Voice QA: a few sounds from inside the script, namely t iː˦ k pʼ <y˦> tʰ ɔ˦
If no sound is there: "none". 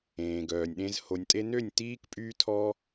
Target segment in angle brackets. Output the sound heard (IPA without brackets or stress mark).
yː˦